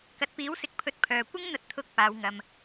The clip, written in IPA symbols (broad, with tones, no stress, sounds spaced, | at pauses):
k ɐ˨ t̚ p iː˨˥ w s ɪ˨˥ k̚ pʰ ɵ˨˥ t̚ pʰ œː˨ kʷ ɪ˥ ŋ n̪ ɐ˧ t̚ t̪ʰ ʊ˨˥ k̚ p aː˨˧ w ŋ ɐ˧ m